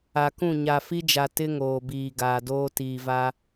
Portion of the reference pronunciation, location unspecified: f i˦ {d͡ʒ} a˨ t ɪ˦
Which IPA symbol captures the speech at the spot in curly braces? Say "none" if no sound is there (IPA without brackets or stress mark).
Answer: d͡ʒ